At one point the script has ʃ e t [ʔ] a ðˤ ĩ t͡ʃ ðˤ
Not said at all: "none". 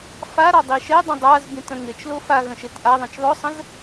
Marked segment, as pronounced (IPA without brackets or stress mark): ʔ